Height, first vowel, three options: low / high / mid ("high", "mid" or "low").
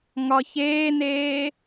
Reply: low